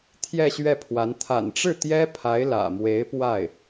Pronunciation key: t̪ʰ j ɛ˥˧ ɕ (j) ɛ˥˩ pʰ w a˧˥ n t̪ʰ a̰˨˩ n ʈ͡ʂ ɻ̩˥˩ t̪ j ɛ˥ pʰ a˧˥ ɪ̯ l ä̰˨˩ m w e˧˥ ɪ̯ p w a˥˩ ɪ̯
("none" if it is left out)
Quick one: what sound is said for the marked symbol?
ɥ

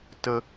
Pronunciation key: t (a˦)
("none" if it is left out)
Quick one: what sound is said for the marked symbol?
ə˦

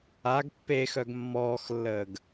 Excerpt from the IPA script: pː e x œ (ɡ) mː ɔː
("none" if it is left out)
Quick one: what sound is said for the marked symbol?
ɡ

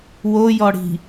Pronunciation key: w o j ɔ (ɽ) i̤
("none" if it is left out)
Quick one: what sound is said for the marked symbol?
ɽ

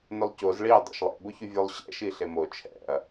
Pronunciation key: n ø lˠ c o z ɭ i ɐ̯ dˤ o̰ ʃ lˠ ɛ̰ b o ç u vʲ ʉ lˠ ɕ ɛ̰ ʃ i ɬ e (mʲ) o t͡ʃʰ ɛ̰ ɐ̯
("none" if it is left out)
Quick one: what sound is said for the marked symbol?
m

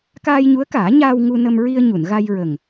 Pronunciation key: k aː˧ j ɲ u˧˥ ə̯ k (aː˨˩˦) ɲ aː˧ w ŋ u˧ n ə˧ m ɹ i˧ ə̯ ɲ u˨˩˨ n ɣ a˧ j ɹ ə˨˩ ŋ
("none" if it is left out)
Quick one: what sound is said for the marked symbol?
aː˨˩˦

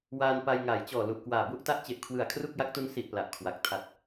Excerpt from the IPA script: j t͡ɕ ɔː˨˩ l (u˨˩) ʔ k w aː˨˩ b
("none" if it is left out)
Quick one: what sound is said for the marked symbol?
u˨˩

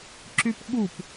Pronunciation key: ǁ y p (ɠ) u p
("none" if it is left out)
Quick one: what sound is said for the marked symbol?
ɠ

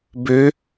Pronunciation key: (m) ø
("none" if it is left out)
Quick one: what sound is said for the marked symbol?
b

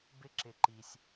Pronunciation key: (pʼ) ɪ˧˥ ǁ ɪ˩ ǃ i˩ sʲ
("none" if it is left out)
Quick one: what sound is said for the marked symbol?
b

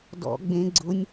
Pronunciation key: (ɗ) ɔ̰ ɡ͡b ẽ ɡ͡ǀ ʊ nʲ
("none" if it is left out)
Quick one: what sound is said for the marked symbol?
d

